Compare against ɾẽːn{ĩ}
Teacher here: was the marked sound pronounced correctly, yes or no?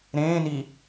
no